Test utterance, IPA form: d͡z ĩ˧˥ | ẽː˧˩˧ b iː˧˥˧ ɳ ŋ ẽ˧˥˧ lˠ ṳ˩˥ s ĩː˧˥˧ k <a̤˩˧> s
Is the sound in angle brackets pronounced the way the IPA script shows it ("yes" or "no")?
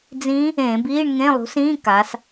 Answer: no